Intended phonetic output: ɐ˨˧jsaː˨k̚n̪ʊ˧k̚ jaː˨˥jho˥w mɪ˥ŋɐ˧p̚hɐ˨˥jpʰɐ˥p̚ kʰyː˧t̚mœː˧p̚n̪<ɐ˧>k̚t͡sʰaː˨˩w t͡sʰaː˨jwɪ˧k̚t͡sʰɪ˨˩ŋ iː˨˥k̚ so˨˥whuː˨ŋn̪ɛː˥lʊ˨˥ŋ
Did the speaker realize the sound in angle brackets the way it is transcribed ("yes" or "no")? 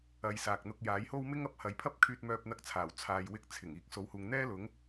yes